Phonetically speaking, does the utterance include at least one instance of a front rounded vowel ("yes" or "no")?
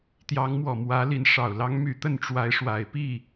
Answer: yes